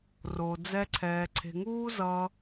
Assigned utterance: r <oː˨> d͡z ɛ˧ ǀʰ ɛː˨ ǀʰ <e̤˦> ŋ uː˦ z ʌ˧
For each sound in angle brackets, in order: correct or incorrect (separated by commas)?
incorrect, incorrect